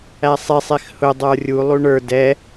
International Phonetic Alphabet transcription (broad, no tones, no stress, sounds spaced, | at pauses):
æ sˤ e sˤ e x h ʊ dˤ ə˞ rʲ u lˠ u ɳ ə˞ d ɛ